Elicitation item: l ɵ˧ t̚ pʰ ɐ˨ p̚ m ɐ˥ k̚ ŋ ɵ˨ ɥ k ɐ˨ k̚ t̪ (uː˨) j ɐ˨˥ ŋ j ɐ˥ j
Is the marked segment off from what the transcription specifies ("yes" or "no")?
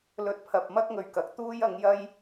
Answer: yes